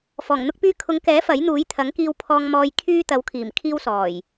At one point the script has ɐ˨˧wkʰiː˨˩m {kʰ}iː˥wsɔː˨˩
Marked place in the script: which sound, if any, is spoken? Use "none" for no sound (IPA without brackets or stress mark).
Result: kʰ